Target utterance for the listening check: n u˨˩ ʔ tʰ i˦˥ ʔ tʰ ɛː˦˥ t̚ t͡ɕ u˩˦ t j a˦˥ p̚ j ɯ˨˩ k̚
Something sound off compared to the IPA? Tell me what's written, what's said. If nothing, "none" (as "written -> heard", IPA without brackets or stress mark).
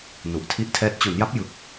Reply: t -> n